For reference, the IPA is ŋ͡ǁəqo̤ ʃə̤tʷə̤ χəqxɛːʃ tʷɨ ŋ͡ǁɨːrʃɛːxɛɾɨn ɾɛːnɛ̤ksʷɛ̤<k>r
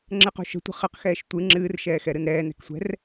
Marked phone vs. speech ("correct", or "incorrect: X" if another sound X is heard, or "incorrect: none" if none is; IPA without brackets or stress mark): incorrect: none